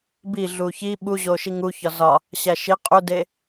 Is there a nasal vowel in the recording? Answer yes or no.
no